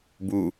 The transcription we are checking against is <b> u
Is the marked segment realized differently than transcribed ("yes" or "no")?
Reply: no